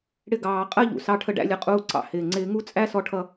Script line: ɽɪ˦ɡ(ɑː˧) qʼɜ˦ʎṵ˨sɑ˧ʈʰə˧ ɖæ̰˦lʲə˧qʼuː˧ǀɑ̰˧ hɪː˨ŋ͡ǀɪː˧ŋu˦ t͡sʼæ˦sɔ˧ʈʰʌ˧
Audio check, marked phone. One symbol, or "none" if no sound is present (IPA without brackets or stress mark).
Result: ɑː˧